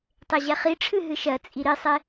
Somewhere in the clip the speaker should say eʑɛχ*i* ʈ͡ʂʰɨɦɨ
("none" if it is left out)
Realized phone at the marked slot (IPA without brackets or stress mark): i